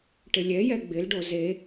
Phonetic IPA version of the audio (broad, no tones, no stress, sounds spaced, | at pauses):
ʈ ɪ lʲ ɛ j ɛ ɡ͡b ɪ l ɖ o z e